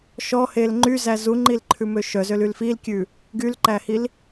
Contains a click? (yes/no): yes